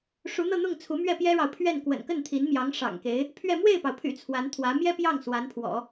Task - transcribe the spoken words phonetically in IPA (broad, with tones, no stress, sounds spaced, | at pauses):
ʂ u˧˥ n̪ ɤ˥˧ n̪ ʊ˥˩ ŋ t͡sʰ u˧˥ m ɥ ɛ˥˩ p j ɛ˥ ɻ ɑ˨ ʊ̯ pʰ ɥ ɛ˥˩ n k w ə̰˨˩ n k ə˥˩ n t̪ʰ i˧˥ n m j ɑ˧˥ ŋ ʂ ɑ̰˨˩ ŋ k e˧˥ ɪ̯ | pʰ ɥ ɛ˥˧ m w e˥˩ ɪ̯ p ɑ˩ ʊ̯ pʰ y̰˨˩ t͡sʰ w a˧˥ n t̪ʰ w ä˧˥ m j ɛ˥ p j ɑ˥˩ ŋ s w a˧˥ n pʰ w ɔ̰˨˩˦